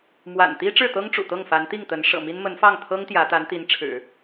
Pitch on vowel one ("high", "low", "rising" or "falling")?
low